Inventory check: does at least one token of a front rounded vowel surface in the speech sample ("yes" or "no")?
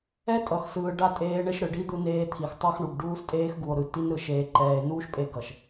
no